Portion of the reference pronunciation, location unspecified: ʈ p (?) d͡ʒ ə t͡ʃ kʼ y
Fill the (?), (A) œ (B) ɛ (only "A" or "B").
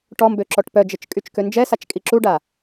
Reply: A